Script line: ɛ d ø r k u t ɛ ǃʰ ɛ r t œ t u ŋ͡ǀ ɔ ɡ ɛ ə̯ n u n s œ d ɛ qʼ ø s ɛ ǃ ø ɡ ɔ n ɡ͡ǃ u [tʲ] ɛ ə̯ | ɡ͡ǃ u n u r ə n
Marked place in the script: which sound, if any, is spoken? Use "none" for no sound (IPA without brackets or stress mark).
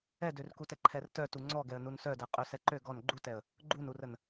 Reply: t